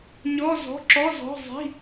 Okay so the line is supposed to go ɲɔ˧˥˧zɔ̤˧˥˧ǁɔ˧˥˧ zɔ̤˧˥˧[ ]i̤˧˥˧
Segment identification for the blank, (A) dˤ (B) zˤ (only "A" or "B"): B